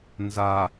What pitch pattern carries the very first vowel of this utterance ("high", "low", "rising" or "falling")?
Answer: low